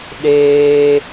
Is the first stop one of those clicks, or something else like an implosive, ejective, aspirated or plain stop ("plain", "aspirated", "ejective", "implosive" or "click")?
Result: implosive